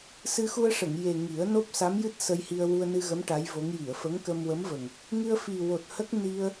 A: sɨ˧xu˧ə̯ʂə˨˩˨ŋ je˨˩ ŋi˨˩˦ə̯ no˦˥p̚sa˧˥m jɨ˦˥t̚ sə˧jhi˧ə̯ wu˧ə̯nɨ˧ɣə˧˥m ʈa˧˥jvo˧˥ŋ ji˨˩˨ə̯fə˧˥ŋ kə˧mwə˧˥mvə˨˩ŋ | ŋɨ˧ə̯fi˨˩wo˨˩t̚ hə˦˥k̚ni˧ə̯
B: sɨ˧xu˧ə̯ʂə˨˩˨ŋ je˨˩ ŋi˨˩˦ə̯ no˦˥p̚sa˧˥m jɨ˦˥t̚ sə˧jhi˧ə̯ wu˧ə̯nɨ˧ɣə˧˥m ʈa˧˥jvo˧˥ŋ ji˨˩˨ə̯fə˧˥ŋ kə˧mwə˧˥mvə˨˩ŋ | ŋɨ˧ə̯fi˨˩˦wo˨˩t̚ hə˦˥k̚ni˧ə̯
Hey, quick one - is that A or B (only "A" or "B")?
A